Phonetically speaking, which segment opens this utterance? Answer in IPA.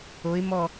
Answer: o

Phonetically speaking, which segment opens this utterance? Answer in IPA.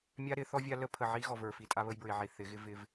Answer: mʲ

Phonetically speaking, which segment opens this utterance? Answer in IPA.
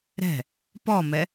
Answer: ɾ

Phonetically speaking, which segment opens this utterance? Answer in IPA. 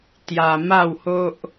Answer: t̪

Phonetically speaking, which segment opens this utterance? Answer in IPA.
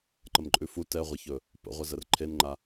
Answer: ǃ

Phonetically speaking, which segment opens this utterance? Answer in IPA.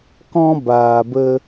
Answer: k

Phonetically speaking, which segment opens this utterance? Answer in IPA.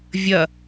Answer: vʲ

